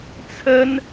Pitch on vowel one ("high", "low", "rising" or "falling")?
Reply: high